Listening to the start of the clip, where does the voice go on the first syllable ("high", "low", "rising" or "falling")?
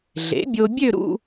rising